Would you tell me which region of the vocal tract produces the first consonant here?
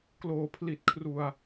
velum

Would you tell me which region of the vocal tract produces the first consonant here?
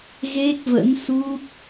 velum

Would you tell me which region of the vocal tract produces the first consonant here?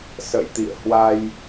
tongue tip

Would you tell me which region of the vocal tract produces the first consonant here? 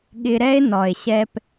velum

